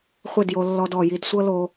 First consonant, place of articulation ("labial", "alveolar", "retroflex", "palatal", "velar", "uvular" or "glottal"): uvular